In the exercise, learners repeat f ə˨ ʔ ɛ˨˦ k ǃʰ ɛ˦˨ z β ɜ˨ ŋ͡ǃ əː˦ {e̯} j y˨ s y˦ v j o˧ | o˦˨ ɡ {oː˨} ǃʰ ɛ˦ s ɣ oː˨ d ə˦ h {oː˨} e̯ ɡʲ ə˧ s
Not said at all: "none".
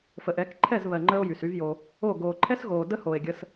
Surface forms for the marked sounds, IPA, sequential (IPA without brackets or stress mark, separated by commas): o̯, oː˨, oː˨